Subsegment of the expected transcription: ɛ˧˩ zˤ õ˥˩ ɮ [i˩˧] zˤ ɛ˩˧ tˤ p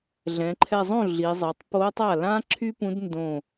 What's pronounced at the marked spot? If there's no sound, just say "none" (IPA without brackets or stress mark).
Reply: i˩˧